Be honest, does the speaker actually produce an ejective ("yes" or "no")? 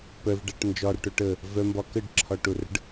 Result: no